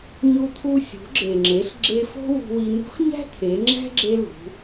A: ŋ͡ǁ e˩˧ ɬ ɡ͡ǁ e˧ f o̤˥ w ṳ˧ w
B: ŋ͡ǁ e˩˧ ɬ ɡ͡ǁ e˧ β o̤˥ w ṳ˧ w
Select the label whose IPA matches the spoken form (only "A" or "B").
A